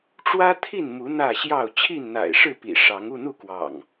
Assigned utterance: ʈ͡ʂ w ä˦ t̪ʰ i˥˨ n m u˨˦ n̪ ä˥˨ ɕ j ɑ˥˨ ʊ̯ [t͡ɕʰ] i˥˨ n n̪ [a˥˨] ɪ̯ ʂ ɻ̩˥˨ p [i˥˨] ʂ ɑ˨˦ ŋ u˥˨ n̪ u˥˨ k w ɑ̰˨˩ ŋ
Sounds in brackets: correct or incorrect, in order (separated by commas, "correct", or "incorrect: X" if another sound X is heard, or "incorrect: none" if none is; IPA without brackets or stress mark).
correct, incorrect: a̰˨˩, incorrect: ḭ˨˩